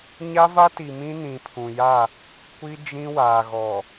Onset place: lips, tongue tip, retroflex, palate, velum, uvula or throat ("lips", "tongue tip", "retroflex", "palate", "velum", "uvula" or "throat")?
palate